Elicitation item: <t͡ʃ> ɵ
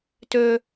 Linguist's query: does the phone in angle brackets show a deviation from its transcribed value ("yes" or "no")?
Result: yes